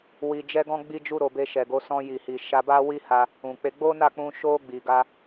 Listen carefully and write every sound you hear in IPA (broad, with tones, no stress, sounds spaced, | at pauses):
w i˧ d͡ʒ ɛ˦ ɡ ɔ̃˦ ɡ͡b i˦ d͡ʒ u˦ ɾ o˧ b e˧ ʃ ɛ˨ ɡ o˨˦ s ɔ̃˧ j i˨ h i˨ ʃ a˧ b a˦ w i˦ h a˧ | ũ˨ k͡p e˧ ɡ͡b o˦ n a˦˨ k͡p ũ˧ ʃ o˧ ɡ͡b i˨ ɡ a˧